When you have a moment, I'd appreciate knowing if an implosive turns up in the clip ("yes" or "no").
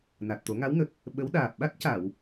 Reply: yes